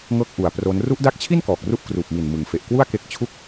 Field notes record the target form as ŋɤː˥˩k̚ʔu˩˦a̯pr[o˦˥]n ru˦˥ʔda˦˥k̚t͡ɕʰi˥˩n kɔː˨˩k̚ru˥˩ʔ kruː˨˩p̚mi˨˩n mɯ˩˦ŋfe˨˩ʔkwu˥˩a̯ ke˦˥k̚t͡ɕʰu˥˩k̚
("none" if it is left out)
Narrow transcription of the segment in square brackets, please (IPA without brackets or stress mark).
o˦˥